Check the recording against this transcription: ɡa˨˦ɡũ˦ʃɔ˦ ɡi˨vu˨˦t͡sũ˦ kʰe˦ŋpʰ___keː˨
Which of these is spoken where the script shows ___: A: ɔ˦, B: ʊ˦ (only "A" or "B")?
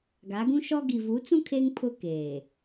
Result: B